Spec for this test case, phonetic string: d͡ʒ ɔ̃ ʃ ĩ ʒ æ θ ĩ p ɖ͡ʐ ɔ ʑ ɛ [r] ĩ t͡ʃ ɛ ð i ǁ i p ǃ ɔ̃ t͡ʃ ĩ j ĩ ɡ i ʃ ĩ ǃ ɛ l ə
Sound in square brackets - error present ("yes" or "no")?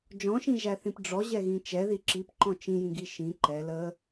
yes